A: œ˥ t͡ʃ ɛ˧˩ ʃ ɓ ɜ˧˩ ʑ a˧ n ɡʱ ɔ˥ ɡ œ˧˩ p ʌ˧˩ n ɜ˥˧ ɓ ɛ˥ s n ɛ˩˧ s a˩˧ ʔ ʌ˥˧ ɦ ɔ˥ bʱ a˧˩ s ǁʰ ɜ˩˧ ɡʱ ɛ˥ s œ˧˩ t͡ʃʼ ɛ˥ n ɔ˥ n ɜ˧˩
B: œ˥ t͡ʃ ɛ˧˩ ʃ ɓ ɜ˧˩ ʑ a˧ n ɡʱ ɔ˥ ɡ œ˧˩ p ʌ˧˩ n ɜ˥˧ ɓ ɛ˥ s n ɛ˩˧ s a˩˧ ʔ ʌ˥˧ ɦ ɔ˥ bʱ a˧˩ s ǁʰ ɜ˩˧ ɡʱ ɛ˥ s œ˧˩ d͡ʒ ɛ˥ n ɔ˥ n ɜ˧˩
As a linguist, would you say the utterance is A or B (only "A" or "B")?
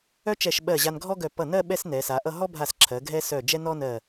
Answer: B